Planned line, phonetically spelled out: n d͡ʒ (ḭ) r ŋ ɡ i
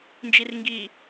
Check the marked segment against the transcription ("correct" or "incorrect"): incorrect